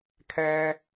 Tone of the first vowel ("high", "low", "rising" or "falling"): high